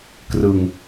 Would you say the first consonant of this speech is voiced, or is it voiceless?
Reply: voiceless